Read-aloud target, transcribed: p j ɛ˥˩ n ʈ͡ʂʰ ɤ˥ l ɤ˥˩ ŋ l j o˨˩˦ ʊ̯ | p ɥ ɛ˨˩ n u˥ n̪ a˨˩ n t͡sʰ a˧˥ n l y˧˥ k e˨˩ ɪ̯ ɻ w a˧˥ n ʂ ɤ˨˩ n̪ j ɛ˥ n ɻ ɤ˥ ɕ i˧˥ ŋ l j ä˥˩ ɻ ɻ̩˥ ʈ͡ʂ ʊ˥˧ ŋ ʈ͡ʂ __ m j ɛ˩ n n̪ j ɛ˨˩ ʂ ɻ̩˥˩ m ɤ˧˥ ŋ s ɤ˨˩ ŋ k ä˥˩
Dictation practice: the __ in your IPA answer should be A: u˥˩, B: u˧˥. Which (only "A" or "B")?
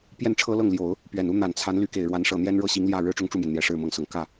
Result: A